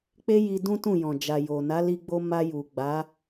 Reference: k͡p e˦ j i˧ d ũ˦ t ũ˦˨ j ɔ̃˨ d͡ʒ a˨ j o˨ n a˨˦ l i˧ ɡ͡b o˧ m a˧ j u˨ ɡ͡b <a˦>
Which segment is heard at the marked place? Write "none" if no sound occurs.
a˨˦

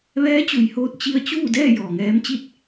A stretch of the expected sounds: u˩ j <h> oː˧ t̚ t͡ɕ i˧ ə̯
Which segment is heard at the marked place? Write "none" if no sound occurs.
h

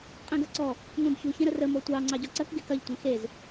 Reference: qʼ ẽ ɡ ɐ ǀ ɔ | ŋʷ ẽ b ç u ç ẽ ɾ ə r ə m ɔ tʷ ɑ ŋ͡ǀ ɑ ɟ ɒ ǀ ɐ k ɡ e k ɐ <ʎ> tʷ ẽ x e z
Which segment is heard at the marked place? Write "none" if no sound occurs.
ʎ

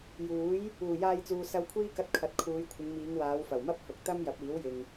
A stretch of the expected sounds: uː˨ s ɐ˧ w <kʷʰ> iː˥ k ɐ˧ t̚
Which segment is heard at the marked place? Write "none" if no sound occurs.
kʷʰ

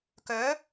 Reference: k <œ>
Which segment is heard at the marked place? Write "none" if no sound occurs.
œ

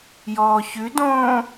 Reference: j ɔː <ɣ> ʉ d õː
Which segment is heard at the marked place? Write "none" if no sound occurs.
ç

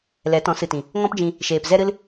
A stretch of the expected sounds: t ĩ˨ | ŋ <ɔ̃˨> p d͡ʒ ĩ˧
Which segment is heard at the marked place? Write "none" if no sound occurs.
ɔ̃˦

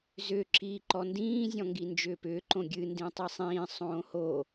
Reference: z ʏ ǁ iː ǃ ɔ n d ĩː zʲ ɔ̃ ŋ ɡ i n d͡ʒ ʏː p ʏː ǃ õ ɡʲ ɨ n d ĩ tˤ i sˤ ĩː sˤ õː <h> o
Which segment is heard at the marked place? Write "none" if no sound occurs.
h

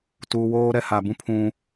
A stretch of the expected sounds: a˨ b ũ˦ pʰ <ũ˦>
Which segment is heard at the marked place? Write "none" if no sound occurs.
ũ˦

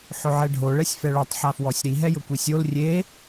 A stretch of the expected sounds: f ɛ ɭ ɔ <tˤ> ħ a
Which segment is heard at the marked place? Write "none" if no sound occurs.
tˤ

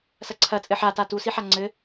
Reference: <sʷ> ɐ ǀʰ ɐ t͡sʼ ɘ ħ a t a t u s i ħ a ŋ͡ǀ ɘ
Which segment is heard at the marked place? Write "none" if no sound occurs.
s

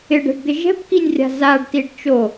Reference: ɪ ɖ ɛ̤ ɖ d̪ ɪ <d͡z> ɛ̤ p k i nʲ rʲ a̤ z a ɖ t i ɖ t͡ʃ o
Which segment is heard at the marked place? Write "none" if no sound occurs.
ʒ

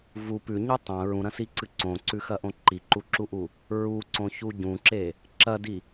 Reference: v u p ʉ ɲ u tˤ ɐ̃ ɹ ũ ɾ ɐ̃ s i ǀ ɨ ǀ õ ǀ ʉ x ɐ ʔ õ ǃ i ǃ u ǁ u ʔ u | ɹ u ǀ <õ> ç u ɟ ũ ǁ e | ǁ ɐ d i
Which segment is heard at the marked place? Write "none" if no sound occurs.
õ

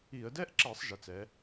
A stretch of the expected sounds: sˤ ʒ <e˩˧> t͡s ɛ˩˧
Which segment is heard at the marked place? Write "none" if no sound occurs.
e˩˧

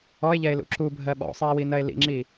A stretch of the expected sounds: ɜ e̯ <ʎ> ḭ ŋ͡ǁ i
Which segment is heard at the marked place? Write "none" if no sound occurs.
l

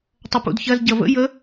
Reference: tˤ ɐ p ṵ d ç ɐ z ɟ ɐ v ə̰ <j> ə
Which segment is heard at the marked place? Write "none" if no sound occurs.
j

